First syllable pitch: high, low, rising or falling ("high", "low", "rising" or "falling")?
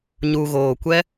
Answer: low